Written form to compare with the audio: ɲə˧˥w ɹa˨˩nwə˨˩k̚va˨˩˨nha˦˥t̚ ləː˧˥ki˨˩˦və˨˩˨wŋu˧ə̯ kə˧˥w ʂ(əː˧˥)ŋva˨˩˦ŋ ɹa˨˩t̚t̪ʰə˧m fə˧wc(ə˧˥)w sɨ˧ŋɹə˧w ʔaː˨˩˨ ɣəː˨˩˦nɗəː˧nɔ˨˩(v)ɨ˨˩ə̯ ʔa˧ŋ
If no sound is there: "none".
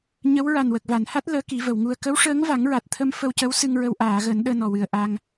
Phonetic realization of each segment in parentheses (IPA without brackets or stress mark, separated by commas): əː˧˥, ə˧˥, w